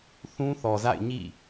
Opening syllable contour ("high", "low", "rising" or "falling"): high